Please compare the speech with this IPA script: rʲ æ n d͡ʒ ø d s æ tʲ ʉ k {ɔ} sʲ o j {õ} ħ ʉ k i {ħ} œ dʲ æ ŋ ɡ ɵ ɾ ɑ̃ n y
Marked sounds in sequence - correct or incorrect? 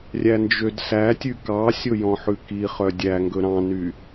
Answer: incorrect: ɑ, incorrect: ɔ̃, incorrect: χ

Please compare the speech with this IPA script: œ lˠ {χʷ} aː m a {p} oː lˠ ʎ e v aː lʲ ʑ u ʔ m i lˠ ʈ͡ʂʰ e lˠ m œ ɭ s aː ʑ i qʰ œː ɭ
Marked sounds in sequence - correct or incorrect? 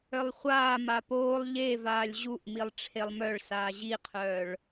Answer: correct, correct

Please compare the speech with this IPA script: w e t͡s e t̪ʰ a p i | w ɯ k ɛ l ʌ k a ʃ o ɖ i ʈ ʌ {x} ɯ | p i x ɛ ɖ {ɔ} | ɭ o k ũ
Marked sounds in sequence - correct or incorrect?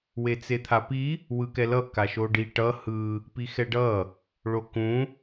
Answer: incorrect: h, incorrect: ʌ

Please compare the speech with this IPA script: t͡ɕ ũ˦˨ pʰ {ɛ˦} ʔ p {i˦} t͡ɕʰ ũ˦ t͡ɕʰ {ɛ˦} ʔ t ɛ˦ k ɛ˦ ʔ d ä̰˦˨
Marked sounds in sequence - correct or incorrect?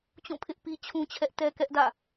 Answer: incorrect: ɪ˦, correct, correct

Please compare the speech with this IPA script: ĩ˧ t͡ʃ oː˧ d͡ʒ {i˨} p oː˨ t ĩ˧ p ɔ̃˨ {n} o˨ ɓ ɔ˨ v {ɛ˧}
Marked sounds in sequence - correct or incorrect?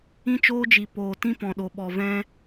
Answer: correct, incorrect: ɗ, incorrect: ɛ̃˧

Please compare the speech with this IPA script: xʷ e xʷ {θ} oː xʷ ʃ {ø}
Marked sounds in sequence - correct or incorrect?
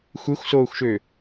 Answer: incorrect: s, correct

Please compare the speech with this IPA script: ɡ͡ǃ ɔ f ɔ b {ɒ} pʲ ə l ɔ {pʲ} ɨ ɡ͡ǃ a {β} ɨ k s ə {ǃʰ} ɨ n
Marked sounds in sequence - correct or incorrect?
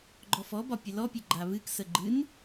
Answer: correct, correct, correct, incorrect: ɡ͡ǃ

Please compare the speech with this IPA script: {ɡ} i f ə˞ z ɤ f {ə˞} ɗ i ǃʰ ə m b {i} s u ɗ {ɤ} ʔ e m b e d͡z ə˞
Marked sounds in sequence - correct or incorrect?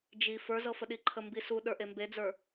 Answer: incorrect: d͡ʒ, incorrect: ə, correct, incorrect: ə˞

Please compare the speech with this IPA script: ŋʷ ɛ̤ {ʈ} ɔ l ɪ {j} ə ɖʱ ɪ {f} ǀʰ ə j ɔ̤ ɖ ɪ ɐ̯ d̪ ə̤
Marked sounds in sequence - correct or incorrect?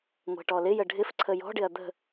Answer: correct, correct, correct

